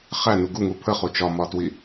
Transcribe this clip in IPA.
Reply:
χ æ n u ɡ u ŋ u pʰ ə χ u t͡ʃ ɒ m ɒ t w i

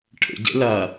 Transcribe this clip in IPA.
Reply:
ʈʰ ə̰ ɟ ɛ̰ l a

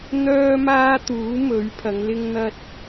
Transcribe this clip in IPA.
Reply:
n̪ œː˥ m aː˥ t̪ uː˨˥ m ɵ˨˥ ɥ pʰ ɐ˨˧ ŋ l ɪ˧ ŋ n̪ ɐ˧ t̚

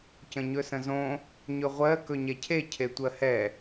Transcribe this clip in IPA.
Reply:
c ə̃ ɲ ɵ s ə̃ z õ | ɲ ɵ ʁʷ ɜ k ɵ ɲ ɛ cʰ e cʰ e tʷ ɜ h ɛ

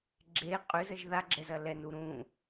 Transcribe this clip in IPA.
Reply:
ɡ͡ǁ e qʼ ʏ z ə ʒ ð a ɡ͡ǁ ɛ z ɐ l ɛ n u ɾ ũ

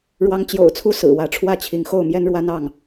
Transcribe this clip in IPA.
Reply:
ɻ w ɑ˧˥ ŋ t͡ɕ j o̰˨˩ ʊ̯ t͡sʰ u˥ s ɹ̩˨˩ w ä˧˥ ʈ͡ʂʰ w ä˥˩ t͡ɕʰ i˧˥ ŋ x o˥˩ ʊ̯ m j ɛ˥ n ɻ w a˥ n ɑ˥˩ ŋ

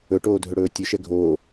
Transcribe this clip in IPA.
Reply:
ɵ ʈ oː dʱ ɵ ɽ ɵː tʲ ɵ ʃ ɛ ɡʱ oː

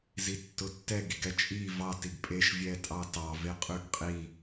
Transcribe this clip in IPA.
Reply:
z i tː ʊ tː ɛ ɡ i ɡ ɛ t͡ʃʼ i v ɑ t i ɡ pʼ e ʃ vʲ ɛ tʼ ɑ t ɑ v e qʼ ʉ ɡ qʼ i

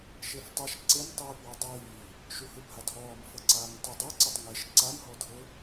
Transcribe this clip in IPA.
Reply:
ʃ e f tˤ i ʃ ǀ e m tˤ iː p w a dˤ iː | ʃ u h ɯ bʱ a dʱ ɔː m f ɤ ǀ aː ŋ tˤ ɛ dˤ o ǀ e tˤ ŋ e ʃ ǀ a m ɦ ɔ dʱ ɤ

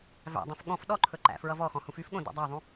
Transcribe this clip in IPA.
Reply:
v æ̰ dˤ õ f ɠ ɔ̃ f ɗ ɔ ǃʰ ɵ ǃ æ̰ f ɹ ʌ v ɔ x ɔ̃ h ũ f y f ɠ õ d ɔ̰ dˤ æ ðˤ ũ

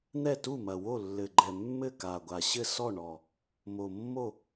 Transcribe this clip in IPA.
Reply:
n̪ ɛ˥˩ t u˥˩ m ɐ˨˩ w o˥˩ lː ɘ˨˩ ɡ͡ǃ ɛ˨˩ mː ɘ˥˩ k a˨˩ ɡʷ a˨˩ ɕ ɘ˥˩ s ɔ˥˩ ɳ ɔ˨˩ | m o˨˩ mː o˥˩

